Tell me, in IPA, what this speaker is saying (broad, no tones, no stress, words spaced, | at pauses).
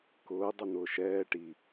kʊː dˤʊn̪ʊːʃɛː ʈi